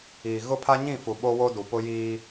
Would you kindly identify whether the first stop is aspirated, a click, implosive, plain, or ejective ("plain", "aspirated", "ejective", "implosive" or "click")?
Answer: aspirated